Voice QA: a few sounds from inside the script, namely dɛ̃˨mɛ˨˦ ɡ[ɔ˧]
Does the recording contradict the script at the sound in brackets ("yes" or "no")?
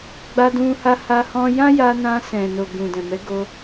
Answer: yes